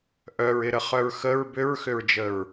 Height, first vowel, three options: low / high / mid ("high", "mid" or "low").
mid